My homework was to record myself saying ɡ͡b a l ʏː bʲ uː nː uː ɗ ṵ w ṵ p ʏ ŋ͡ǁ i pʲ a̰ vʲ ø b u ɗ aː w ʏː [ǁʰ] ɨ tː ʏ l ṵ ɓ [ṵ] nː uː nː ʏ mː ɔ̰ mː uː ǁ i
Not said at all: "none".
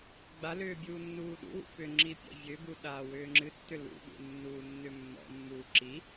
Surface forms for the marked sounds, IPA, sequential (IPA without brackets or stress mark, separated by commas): ŋ͡ǁ, ṵ